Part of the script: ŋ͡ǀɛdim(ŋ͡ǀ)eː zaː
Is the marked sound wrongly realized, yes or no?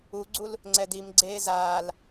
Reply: yes